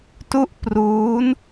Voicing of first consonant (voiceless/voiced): voiceless